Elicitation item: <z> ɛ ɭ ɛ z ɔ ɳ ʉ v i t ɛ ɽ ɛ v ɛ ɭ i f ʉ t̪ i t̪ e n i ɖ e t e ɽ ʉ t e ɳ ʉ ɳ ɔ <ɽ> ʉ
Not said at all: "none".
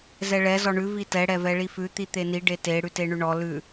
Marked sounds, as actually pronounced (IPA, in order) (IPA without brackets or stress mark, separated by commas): z, l